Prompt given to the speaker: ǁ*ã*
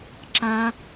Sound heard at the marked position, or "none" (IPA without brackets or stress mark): ã